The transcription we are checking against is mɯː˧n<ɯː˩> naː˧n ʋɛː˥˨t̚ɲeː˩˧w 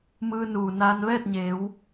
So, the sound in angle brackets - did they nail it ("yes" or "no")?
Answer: no